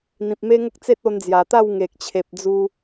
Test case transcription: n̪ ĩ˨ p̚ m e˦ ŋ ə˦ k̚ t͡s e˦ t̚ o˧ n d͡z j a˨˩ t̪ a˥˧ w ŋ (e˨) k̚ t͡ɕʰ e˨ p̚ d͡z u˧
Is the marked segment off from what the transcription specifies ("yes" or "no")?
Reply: no